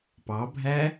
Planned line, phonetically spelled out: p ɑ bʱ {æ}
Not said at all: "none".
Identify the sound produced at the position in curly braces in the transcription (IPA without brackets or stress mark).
æ